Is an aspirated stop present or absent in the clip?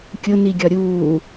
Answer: absent